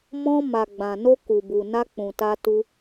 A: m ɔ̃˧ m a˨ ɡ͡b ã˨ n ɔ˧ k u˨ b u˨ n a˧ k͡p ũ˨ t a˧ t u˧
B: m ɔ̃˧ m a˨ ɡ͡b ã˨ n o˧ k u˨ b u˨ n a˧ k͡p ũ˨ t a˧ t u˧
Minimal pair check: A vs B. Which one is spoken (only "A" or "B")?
B